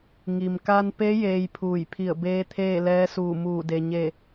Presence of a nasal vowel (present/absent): absent